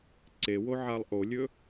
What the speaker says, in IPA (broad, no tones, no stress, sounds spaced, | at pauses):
ǀ e w o ʕ a lˠ ʔ o lʲ ɵ